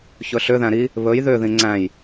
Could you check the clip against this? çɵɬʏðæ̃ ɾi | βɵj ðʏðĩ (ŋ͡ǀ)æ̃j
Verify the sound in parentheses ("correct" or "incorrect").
correct